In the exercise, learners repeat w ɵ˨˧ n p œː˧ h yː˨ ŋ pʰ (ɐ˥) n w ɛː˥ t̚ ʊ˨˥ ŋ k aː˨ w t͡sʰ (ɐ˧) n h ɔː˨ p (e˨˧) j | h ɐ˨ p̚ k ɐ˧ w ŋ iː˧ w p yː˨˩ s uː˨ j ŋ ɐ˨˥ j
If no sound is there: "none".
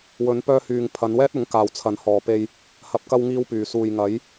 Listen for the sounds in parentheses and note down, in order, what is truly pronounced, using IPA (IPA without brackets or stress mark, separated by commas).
ɐ˨˧, ɐ˨˥, e˧